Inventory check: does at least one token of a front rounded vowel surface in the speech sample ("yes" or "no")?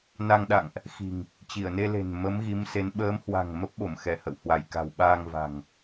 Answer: no